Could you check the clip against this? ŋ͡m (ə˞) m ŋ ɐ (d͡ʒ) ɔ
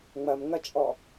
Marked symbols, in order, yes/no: no, no

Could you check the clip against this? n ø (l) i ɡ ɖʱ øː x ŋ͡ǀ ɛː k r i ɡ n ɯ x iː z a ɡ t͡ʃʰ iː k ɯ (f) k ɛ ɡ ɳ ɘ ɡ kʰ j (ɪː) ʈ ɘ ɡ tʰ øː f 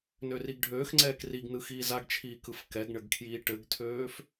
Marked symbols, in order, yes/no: no, yes, no

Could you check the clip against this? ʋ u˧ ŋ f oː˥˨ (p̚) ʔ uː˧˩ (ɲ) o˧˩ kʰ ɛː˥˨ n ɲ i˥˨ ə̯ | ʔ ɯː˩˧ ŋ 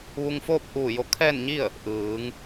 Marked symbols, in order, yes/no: yes, no

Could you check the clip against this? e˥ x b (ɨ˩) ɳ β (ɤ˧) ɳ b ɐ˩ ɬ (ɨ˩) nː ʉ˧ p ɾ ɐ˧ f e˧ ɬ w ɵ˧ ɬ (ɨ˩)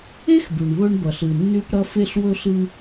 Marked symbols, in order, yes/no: no, no, yes, no

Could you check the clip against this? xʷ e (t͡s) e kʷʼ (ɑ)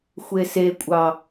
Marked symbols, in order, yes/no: no, yes

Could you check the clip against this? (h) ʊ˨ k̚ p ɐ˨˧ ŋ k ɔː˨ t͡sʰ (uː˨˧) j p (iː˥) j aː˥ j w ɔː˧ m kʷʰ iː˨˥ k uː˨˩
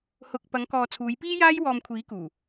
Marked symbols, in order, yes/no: yes, yes, yes

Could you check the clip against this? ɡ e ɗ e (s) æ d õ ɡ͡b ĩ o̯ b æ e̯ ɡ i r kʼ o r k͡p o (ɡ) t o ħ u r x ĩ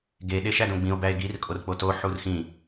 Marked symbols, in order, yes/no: no, no

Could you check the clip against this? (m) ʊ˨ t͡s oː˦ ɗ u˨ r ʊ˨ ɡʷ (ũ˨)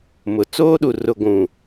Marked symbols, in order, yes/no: yes, yes

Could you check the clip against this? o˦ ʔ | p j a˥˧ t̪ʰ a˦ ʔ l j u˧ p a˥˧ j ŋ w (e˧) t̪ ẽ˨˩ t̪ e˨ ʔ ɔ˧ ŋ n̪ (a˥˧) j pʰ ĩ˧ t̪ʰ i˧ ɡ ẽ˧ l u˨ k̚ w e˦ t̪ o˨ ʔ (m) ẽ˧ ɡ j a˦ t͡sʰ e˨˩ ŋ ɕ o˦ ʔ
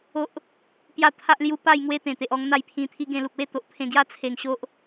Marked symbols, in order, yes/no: no, yes, no

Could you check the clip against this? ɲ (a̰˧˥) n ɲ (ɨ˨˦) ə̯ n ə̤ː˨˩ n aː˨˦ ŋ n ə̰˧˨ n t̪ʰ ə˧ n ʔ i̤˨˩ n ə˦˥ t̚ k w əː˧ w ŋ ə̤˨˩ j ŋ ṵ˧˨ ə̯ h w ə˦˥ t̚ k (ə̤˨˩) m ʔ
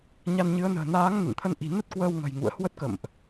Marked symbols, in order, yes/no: no, yes, no

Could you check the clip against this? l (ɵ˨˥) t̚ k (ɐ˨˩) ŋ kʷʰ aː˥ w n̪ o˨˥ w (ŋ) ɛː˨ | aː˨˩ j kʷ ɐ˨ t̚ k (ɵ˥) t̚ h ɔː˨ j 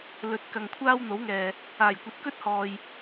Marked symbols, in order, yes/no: yes, no, yes, yes

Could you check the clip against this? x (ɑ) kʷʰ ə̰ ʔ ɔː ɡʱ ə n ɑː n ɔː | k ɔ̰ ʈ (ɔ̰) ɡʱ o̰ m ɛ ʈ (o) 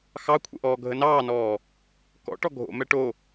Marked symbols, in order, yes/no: yes, no, yes

